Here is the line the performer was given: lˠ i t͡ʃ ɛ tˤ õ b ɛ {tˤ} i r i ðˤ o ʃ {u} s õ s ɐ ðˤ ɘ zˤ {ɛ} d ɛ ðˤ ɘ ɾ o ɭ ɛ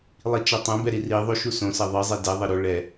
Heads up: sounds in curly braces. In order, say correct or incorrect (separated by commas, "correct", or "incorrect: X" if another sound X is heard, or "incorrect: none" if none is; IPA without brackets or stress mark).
incorrect: ɾ, correct, correct